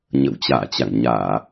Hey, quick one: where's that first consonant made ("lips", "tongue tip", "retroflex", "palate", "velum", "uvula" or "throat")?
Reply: palate